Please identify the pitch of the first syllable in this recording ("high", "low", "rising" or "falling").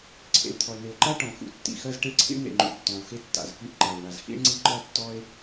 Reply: low